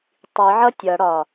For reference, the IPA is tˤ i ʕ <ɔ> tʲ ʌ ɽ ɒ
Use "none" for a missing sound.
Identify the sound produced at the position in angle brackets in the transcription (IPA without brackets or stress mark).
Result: ʌ